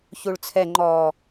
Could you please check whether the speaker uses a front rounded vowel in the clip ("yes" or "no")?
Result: no